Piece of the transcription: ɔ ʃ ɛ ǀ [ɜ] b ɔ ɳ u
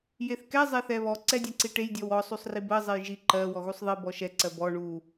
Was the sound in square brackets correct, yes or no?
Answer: yes